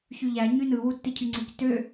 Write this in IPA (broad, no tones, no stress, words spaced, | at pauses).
çyʎæ ɲynɯ wutːicʰyŋ͡ǀic tø